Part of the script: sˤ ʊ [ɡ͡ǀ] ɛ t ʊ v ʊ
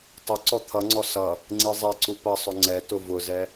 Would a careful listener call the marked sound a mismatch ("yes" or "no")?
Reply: yes